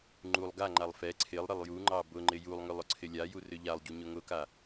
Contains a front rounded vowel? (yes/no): yes